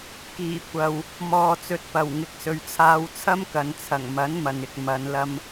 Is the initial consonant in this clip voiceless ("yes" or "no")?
yes